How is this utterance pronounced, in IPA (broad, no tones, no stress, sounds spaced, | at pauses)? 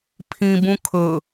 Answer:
pʰ ĩ b ũ kʰ ɵ